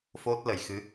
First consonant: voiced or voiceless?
voiceless